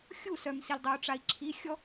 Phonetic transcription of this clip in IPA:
xʲusœmsilʲ dˤou̯ʈ͡ʂai̯ǁʰixʲɔ

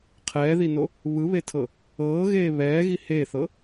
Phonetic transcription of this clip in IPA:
qʰɛːðino | βɯβetʰɤ | ɤːɣeː βɛːɣi heθɤ

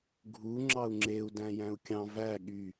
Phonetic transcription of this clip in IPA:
ɡʱu ŋ͡ǁɑu̯ŋ͡ǁeu̯ dæ̃jæ̃u̯kʲɑ̃ væ ɠy

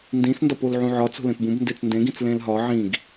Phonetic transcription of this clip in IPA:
ndĩsndɒp olʕũʕɒt͡so̤ lẽpbũb ndet͡sndẽɡĩt͡s lẽlɦɒ ʕĩɡ

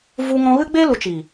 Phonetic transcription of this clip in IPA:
vu˧ ŋɔ̃˧ɣɨ˦ɡ͡be˦ lu˨t͡ʃiː˨

